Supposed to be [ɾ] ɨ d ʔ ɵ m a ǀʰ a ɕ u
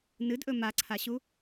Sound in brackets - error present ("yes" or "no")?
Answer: yes